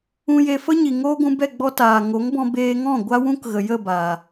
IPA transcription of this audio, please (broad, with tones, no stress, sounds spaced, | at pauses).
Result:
ũ˧ j e˧ f ə˦ ɲ i˨ ŋ oː˦ ɡʷ ũ˧ b ɛ˦˨ ɡ͡b ɔ˦ t aː˨ ŋ o˨˦ ŋ b ɔ̃˧ b eː˧ ŋ ɔ̃˦˨ ɡʷ a˦ w ũ˦ k ɣ ə˨ j ə˦˨ b aː˨